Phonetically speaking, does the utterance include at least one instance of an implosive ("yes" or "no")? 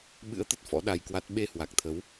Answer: yes